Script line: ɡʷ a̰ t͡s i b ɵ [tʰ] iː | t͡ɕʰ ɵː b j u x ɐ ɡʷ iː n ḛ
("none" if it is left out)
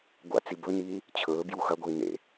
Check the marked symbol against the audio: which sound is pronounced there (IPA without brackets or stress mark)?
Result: n